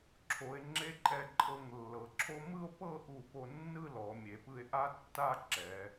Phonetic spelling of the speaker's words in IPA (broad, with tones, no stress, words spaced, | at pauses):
ǁʰo˩˧e̯ ŋ͡ǁe˧ǃʼɛ˧˩ǃʼɤ˧˩ŋ lːɤ˩˧ǁʰo˥ mɯ˥˧o̯pɤ˥˧ʔu˧˩po˧ nːɯ˥˧lɔ˩˧mʲe˩˧pɯ˧e̯ ʔa˥tːa˥˧ ǁɛ˩˧